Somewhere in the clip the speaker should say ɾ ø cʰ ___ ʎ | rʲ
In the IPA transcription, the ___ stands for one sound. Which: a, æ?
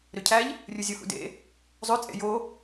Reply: æ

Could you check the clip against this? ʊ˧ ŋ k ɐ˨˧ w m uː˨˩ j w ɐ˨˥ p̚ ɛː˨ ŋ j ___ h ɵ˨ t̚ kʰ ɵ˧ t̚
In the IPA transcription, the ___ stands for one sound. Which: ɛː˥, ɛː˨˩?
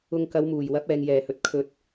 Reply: ɛː˨˩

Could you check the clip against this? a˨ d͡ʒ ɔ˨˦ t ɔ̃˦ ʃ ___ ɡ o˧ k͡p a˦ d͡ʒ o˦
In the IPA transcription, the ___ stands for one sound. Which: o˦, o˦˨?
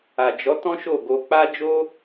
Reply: o˦˨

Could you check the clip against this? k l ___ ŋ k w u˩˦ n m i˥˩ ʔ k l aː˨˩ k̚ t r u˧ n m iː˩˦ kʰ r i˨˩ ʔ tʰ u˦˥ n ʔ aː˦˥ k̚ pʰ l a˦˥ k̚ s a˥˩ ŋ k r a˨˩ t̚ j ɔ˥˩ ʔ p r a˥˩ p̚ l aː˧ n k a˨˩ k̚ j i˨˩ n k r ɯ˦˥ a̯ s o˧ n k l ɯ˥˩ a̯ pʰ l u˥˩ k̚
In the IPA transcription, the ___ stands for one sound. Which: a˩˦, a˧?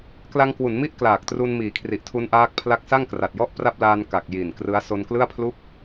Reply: a˧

